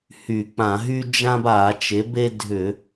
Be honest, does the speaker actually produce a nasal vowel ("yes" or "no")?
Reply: yes